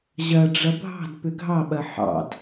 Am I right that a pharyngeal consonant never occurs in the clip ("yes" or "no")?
no